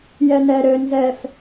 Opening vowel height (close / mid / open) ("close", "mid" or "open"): mid